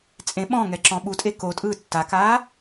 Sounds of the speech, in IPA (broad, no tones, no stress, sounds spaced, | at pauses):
t͡sʼ ẽ ɓ ɔ̃ ŋ ɛ ǁ ɔ̃ ɓ u tʼ e k o tʼ ɯː tː a k aː